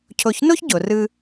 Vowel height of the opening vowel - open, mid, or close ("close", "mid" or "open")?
mid